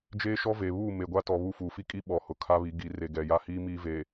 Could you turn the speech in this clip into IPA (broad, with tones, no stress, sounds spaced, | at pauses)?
d͡ʒ eː˦ ʃ ɔ˦ v e˨ β uː˦˨ m e˨ ɡʷ a˦ t ɔ˨ β u˦˨ f uː˨ f i˦ kʼ i˦ ɓ ɔ˨ h ʊ˨ kʰ a˦ β i˨˦ ɡ i˨˦ r e˨ ɡ ɛ˨ j a˦ h iː˦ m iː˦ v eː˨